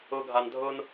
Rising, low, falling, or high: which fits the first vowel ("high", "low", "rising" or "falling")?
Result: low